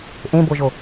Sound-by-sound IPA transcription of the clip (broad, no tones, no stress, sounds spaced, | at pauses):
ʔ ẽ b o ʒ o